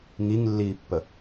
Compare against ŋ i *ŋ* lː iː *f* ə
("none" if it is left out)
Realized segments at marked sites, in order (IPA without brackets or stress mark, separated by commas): ŋ, pː